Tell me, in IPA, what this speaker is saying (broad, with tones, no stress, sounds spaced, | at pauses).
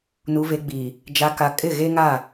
n u˨ v e˨ ɡ͡b iː˨ | d͡ʒ a˨ k a˨ kʼ ɪ˦˨ ɣ e˦ ŋ aː˦˨